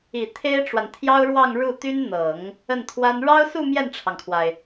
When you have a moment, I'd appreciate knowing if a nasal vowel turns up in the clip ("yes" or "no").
no